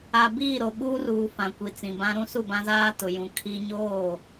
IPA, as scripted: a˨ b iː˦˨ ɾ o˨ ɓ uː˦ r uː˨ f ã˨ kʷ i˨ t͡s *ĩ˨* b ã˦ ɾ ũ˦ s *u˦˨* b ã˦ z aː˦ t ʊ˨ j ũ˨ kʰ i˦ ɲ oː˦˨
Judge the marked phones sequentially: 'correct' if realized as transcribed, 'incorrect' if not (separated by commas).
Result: correct, correct